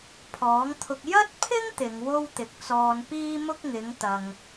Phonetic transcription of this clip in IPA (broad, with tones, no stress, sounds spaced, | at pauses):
pʰ ɔː˨˥ ŋ t̪ʰ ʊ˧ k̚ j ɐ˥ t̚ pʰ ɪ˥ ŋ t̪ ɪ˨˧ ŋ w o˥ w t̪ ɪ˨ k̚ t͡s ɔː˧ n p iː˥ m ʊ˥ k̚ ŋ ɪ˨˥ ŋ t̪ ɐ˧ ŋ